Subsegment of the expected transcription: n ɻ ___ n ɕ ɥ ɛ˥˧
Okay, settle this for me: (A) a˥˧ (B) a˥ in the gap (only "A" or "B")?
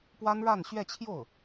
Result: A